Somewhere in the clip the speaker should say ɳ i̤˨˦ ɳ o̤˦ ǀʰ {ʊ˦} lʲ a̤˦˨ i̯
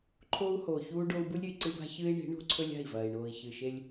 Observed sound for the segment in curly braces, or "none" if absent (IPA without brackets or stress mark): ɵ˦